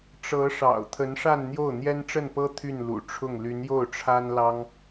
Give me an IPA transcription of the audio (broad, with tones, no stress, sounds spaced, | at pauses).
ʈ͡ʂ ɤ˧˥ ʂ ɑ̰˨˩ ʊ̯ t̪ʰ ə˧˥ n ʂ a˥˧ n n̪ j o˥˩ ʊ̯ n̪ j ɛ˥ n ʈ͡ʂ ə˥˩ n p ɤ˥ t̪ʰ y˥˩ n l ṵ˨˩ ʈ͡ʂʰ ʊ˥˩ ŋ l y˧˥ n j o˥˩ ʊ̯ ʈ͡ʂʰ a˥ n l ɑ˥ ŋ